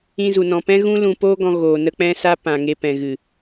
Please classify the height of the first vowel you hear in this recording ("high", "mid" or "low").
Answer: high